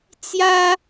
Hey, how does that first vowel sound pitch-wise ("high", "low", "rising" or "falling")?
high